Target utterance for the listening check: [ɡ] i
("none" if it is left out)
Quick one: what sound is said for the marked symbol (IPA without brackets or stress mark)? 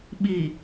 ɓ